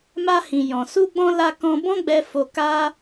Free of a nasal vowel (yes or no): no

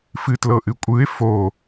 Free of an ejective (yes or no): no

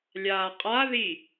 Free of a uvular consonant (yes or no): no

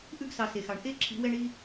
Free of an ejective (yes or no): yes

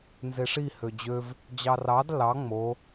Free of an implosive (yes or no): yes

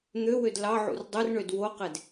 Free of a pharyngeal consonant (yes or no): no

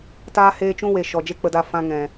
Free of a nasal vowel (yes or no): no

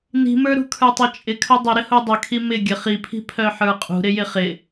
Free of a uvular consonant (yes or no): no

